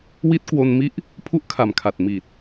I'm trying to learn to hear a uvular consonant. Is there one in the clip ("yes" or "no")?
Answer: no